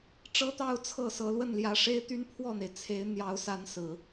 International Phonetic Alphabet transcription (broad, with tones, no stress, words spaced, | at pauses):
ʈ͡ʂɤ˥t̪ɑ˥˧ʊ̯ t͡sʰɤ˥˩sɤ˧˥ lwə˥˩nljä˧˥ʂe˥ɪ̯t̪y˥n pʰwɔ˥˩n̪e˩ɪ̯t͡sʰe˧˥ɪ̯ n̪jɑ˧˥ʊ̯sa˧˥n sɹ̩˨˩˦